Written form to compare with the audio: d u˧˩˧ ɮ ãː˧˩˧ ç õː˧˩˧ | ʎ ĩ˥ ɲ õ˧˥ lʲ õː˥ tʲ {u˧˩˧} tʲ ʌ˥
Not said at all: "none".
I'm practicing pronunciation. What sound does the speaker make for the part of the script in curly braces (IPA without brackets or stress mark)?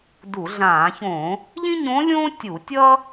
u˧˩˧